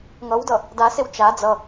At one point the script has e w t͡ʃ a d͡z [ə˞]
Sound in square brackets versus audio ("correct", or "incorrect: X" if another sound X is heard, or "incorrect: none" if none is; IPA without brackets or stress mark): incorrect: ʌ